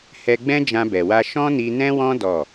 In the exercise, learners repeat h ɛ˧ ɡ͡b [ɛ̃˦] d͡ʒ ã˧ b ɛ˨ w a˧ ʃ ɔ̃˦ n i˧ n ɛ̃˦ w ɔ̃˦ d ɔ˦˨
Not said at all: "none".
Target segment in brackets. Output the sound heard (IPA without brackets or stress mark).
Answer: ɛ̃˦